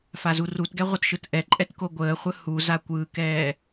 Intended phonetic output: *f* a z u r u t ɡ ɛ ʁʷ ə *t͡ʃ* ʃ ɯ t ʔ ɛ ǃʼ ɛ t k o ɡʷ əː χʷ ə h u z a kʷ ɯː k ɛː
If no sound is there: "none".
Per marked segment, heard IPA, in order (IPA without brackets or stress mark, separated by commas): f, t